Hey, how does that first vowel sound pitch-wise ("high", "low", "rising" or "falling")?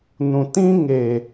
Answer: low